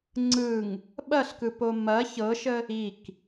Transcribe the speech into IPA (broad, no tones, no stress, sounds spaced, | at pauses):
ŋ͡ǀ ɯ ŋ | ɓ ɐ ɬ k ɯ p o m ɐ ç ɤ ʃ ə | i k